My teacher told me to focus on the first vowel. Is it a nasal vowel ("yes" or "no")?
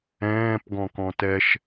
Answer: yes